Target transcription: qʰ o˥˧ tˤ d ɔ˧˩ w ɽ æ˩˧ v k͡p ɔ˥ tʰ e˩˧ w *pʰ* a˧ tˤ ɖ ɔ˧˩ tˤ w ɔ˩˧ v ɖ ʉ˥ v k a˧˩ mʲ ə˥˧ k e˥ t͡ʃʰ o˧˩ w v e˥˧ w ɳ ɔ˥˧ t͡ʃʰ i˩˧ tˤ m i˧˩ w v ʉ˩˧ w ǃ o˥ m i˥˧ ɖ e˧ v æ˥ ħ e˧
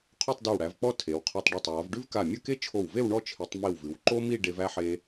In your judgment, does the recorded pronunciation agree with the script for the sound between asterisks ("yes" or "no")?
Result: no